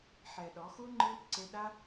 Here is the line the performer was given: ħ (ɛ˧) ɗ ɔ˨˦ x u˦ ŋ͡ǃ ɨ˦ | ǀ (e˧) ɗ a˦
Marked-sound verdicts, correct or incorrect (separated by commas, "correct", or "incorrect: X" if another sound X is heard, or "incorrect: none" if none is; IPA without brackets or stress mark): correct, correct